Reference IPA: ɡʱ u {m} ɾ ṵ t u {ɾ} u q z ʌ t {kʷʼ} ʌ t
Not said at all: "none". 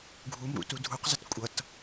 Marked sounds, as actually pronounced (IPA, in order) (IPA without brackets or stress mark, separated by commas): m, dʱ, kʷʼ